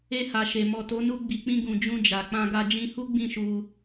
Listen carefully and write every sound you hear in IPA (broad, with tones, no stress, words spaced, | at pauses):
e˧ha˨ʃe˨ mɔ˨to˨˦nu˧ ɡ͡bi˨k͡pĩ˧ ɡũ˨ d͡ʒũ˧d͡ʒa˨ k͡pã˧ɡa˧ d͡ʒĩ˧hu˦ ɡ͡bĩ˦˨ʃu˧